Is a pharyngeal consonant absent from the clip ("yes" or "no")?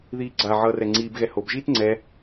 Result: no